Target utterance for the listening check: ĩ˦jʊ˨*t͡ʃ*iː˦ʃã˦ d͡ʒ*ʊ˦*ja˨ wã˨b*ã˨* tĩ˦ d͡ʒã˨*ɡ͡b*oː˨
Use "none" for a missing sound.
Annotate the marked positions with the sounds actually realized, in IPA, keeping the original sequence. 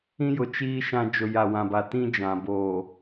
t͡ʃ, ʊ˨, a˨, b

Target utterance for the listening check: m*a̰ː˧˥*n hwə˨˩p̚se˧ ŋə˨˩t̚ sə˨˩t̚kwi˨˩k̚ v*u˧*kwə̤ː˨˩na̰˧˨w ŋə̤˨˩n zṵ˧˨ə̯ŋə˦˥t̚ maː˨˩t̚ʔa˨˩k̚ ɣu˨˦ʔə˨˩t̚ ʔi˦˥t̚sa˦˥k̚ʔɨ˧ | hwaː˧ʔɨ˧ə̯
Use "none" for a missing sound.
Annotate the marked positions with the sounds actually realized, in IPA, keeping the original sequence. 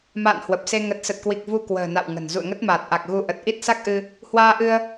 a̰ː˧˨, u˧

